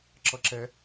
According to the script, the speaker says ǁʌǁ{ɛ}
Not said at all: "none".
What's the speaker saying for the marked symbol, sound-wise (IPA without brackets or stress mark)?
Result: ɛ